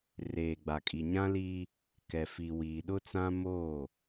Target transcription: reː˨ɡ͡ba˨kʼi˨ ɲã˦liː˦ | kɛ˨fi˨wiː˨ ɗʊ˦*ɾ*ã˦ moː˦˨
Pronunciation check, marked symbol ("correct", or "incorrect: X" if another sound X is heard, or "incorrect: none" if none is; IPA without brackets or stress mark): incorrect: t͡s